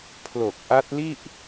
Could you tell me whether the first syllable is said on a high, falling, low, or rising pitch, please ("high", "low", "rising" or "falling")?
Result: low